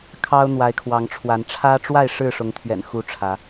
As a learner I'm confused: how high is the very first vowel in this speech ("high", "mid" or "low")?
low